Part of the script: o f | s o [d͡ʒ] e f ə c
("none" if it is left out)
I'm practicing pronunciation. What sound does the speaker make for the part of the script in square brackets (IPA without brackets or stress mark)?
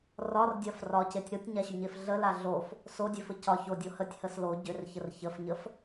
dʲ